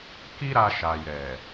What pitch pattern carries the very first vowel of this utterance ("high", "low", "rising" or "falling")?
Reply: high